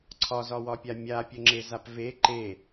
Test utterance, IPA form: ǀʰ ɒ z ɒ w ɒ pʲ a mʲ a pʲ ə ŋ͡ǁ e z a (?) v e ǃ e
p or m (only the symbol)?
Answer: p